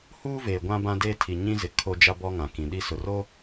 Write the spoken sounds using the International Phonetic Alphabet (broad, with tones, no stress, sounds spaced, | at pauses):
h uː˦ v eː˨ ɡʷ ã˦ b ã˦ d eː˦ tʰ i˨ ɲ ĩ˦ z ɪ˨ kʰ o˦ d͡ʒ a˦ b ɔ˦ ŋ ã˨ k ĩ˨ ɗ i˦ s ʊ˨ r o˦